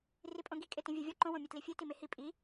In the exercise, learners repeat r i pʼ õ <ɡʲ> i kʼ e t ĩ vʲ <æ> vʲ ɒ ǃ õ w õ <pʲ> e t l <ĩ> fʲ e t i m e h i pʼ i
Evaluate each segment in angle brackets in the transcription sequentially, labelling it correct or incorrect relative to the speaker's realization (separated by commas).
incorrect, correct, incorrect, incorrect